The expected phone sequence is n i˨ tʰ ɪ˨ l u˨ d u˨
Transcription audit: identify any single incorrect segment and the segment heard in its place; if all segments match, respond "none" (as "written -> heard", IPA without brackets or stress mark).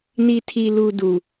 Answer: ɪ˨ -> i˨